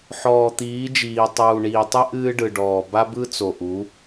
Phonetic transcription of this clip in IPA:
ħ ɔː˨ t̪ iː˨˦ d͡ʒ iː˨ tˤ uː˨ ɳ iː˨ tˤ ɨ˦ ʔ ɨː˦ ɖ ɯ˨ ɖ ɔː˨ b a˦ b ɯ˦ t͡s o˨ ʔ u˨˦

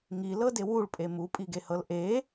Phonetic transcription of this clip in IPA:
ŋ i l ɤ d e w u ɭ pʼ e m u pʼ i ɡ e h ɤ l ʔ e

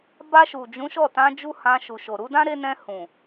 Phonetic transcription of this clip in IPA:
b a˧ ʃ u˨ d͡ʒ ũ˨˦ ʃ ɔ˦˨ t ã˧ d͡ʒ u˦ h ã˧ ʃ u˨ ʃ o˨ ɾ u˨˦ d ã˦ ɾ e˧ n ɛ̃˧ h ũ˨

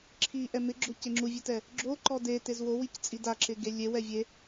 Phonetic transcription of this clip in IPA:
ǁʰ i ʔ ɛ m ɪ ɡ͡ǁ ʊ c e ŋ͡ǁ u vʲ e t ɛ | ɡ͡ǁ o ǃ ɔ d e t e z w o w i c t͡sʼ i d a ǁ ɪ ɡ e lʲ e w ɛ vʲ e

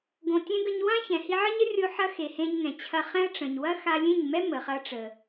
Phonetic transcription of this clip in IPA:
ɡ õ˧ tʲ ɛ̃˦ ɡ ə˧ ɲ w ã˦ ç ɛ̃˨ h i˧ ʕ ə˦ ɲ ə˦ rʲ o˧ ħ ɐ˧ x e˨ h ẽ˧ ɲ ŋ ɛ̃˨ t͡ɕʰ ɐ˧ χ ɛ̃˦ ɐ̯ ʈ͡ʂ ə̃˨ ɲ w ɐ˦ x a˧ lʲ ẽ˦˨ ɲ m ɛ˦ m ə˨ χ ɐ˧ ʈ͡ʂ ə˨

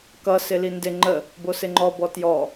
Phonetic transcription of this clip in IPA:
k ʌ s ɪ l i n d ɪ ŋ͡ǃ ə | b o s ɪ ŋ͡ǃ ɔ b ɔ t j ɔ

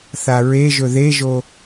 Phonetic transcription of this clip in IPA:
θ a ɹ e ʒ ɵ ð e ʒ o

